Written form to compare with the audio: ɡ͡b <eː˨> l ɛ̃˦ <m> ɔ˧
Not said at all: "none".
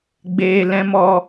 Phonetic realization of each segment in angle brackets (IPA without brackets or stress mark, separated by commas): eː˨, m